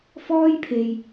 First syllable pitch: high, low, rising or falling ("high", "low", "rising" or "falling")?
high